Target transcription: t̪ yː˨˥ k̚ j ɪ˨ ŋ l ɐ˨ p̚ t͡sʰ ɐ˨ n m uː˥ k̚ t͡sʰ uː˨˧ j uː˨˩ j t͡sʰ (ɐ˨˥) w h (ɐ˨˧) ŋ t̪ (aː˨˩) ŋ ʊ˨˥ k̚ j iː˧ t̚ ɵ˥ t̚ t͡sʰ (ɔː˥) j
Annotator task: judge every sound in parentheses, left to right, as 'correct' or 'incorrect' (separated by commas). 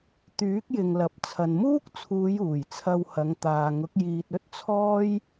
incorrect, correct, incorrect, correct